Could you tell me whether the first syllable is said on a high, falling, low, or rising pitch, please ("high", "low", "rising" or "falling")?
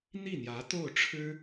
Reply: falling